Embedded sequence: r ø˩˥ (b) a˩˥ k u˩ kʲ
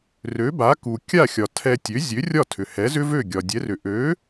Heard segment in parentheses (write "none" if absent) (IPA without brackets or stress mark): b